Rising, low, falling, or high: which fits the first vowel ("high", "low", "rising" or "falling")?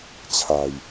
low